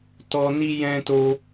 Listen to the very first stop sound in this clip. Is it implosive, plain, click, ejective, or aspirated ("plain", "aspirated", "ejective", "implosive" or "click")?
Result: plain